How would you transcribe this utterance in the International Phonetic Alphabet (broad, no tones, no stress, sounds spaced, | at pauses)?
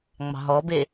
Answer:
ŋ͡m ɑ̤ ɦ ɔ b e